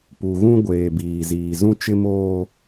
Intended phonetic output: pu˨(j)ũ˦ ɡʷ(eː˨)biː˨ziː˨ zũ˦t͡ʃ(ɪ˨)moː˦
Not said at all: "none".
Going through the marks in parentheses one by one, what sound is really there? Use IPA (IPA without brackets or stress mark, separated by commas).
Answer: ɣ, eː˨, ɪ˦